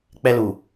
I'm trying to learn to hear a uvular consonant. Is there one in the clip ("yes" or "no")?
no